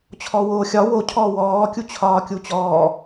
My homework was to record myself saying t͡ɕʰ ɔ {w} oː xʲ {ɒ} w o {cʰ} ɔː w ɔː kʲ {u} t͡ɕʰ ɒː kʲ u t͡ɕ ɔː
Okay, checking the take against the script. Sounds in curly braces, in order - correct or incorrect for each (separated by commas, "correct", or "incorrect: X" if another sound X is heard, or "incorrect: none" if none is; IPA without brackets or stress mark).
correct, correct, correct, correct